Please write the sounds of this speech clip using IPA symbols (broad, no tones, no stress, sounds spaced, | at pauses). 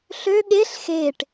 ɬ ø ɠ e ɬ x e ʈ